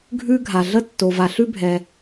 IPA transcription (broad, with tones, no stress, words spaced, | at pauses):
ɡʱʉ˥ɡʱa˩ɮə˥ tːo˩va˩ ɬʉ˥bʱɛ˩